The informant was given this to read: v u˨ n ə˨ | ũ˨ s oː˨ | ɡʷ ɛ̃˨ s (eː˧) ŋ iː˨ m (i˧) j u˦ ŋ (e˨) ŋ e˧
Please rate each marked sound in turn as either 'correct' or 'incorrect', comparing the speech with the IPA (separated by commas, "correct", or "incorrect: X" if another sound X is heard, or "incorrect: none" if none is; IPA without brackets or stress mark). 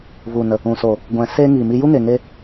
correct, correct, correct